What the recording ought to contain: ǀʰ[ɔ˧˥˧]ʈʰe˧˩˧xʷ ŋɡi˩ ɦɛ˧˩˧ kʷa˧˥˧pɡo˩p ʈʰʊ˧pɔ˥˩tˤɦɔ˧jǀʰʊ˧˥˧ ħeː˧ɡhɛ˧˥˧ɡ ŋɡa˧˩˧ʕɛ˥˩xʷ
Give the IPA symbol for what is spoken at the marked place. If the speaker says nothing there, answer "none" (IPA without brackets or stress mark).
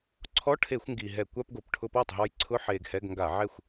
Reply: ɔ˧˥˧